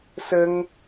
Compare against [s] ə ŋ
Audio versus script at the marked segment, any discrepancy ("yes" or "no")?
no